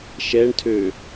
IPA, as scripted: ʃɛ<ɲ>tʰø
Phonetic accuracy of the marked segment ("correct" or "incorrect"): incorrect